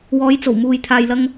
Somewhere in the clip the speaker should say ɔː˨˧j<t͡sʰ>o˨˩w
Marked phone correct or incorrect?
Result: incorrect